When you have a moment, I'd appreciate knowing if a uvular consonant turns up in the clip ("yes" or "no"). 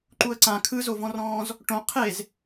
yes